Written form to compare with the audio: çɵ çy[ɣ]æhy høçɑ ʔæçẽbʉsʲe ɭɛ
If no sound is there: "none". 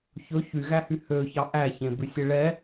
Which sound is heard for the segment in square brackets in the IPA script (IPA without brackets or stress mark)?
ɣ